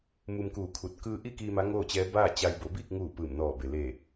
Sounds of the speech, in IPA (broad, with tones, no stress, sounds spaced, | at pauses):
m u˧ m k uː˧˩ kʰ u˧˩ t̚ k ɯː˧ ʔ i˥˨ k iː˧ m a˧˥ ŋ oː˥˨ t͡ɕ ɛː˧˥ b aː˥˨ t͡ɕ a˧ j b o˩˧ b iː˥˨ k̚ ŋ uː˧˩ p ɯː˧˩ m n ɔː˧˩ b e˩ l e˧˩